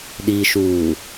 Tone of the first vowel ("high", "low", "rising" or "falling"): low